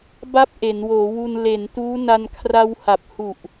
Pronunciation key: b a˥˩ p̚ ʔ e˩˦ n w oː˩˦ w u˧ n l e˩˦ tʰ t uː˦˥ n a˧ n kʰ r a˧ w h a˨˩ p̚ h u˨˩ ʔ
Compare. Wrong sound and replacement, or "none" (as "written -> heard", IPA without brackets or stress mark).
tʰ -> n